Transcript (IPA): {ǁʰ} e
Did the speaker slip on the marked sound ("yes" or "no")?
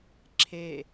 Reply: no